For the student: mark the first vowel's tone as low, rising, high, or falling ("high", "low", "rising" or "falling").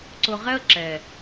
low